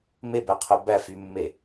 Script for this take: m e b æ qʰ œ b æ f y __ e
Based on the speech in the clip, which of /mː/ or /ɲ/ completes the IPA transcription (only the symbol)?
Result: mː